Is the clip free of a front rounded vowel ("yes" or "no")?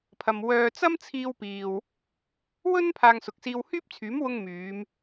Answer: no